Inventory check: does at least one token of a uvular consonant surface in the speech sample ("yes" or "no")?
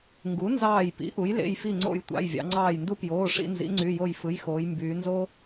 no